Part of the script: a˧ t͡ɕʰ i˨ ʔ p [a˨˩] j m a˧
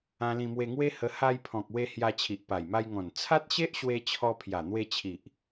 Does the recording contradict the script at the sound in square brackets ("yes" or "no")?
no